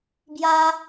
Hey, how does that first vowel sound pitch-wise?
high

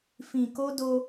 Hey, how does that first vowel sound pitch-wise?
low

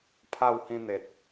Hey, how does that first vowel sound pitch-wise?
falling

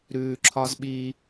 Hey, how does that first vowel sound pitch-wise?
low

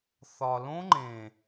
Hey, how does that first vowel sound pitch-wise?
low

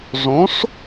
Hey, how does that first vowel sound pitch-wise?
rising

